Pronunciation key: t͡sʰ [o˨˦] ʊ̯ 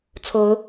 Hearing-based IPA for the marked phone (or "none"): o˨˦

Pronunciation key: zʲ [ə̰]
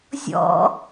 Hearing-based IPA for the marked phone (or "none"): ɔ̰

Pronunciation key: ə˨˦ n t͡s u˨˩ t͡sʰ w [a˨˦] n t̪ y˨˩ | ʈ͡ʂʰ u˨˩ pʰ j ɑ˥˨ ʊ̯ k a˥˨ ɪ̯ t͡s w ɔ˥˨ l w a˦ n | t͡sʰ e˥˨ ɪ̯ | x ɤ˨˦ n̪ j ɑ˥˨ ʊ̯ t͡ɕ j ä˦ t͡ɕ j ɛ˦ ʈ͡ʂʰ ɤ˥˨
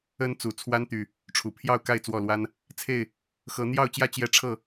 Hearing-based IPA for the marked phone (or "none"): a˦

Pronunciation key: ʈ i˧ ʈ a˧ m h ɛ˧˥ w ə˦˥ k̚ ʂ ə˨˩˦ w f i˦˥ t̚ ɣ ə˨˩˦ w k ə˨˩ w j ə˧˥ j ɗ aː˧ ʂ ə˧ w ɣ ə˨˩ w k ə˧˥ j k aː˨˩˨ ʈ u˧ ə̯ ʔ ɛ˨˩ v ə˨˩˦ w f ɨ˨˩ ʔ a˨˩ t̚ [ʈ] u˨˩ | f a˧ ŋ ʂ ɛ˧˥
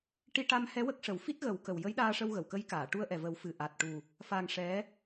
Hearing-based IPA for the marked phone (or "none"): ʈ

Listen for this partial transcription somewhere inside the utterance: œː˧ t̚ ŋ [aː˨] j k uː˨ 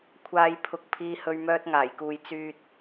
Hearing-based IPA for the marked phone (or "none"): aː˨˩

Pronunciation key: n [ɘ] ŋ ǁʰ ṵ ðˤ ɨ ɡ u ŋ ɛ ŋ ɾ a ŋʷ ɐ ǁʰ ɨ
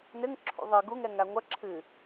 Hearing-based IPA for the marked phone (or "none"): ɘ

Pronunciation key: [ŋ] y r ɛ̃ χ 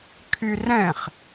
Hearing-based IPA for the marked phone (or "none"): kʰ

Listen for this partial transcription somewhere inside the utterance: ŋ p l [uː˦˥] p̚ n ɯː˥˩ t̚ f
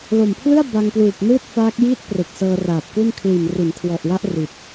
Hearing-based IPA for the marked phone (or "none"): uː˨˩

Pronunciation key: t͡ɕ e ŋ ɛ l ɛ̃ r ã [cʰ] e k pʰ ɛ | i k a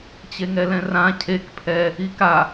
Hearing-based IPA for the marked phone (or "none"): cʰ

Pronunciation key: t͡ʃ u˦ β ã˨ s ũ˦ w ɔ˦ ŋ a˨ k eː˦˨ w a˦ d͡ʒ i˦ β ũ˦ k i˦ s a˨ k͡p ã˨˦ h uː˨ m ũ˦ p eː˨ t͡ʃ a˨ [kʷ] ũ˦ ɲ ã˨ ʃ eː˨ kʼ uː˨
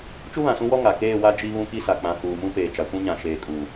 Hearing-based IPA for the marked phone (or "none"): kʷ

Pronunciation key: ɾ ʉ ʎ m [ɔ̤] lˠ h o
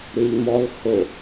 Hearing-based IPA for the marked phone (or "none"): ɔ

